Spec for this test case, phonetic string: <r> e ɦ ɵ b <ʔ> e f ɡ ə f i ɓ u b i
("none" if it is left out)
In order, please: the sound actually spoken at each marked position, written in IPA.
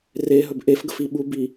r, ʔ

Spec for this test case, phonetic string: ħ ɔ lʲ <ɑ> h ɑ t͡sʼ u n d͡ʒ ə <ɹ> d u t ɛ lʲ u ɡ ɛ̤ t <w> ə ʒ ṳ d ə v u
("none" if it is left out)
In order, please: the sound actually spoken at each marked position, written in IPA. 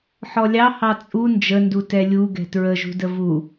ɑ, n, ɹ

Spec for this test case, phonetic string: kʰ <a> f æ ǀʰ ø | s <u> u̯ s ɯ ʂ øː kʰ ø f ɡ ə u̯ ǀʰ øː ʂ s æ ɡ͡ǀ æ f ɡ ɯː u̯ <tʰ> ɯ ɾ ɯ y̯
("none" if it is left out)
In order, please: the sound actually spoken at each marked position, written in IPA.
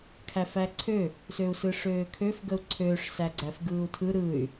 æ, ø, tʰ

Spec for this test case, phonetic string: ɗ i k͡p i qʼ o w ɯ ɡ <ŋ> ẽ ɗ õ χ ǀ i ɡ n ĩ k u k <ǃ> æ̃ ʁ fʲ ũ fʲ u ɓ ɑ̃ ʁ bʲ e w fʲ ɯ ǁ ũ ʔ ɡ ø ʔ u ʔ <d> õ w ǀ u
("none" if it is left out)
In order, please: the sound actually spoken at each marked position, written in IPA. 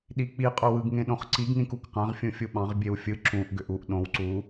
ŋ, q, ɗ

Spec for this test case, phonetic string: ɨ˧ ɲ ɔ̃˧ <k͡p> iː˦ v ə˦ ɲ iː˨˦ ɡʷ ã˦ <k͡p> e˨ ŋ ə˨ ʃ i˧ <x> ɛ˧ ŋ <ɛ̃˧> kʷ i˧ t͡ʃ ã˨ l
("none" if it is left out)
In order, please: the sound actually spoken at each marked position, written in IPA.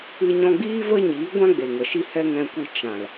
ɡ͡b, ɡ͡b, h, ɛ̃˧

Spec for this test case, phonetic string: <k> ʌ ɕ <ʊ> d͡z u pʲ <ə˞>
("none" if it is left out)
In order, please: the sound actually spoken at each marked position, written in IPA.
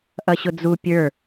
ʔ, ʊ, ə˞

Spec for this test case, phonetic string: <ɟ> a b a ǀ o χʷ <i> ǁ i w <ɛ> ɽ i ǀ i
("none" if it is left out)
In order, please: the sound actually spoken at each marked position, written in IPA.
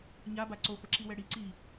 ɲ, ɪ, ɛ

